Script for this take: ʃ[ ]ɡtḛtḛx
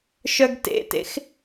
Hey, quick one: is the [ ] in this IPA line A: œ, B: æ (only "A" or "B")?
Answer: A